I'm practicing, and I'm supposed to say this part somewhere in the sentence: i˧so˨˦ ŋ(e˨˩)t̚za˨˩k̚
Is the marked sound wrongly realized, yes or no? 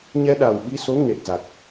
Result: no